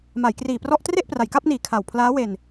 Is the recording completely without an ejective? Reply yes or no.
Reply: yes